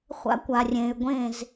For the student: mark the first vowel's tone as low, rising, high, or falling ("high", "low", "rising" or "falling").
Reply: high